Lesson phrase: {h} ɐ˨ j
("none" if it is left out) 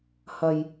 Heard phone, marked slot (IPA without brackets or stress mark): h